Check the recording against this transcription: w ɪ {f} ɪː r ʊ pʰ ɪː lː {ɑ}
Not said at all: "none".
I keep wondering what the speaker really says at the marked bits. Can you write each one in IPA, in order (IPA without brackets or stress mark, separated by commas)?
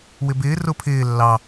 b, ɑ